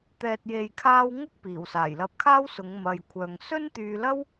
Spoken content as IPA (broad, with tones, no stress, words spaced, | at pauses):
t̪ɛː˨t̚je˨jkʰaː˧w ŋʊ˥k̚ piː˨˩wsaː˨˩jlɐ˧p̚kʰaː˥w sʊ˨˧ŋmɐ˨jkʷʰœː˨ŋ sɵ˥nt̪yː˧lɐ˥w